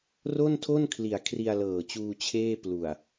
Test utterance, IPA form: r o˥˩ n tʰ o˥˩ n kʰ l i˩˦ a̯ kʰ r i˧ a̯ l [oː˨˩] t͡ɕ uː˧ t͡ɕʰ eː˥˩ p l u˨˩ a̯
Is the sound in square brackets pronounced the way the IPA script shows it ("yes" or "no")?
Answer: no